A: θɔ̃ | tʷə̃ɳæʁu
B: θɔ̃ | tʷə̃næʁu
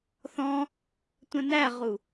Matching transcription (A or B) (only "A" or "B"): B